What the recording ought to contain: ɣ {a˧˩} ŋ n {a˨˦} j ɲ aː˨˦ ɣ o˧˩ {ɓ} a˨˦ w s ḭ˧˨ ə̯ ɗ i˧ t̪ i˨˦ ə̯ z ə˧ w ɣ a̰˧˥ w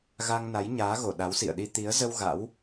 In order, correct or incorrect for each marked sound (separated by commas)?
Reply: incorrect, correct, incorrect